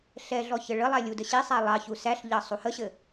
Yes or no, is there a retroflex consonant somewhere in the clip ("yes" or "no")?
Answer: yes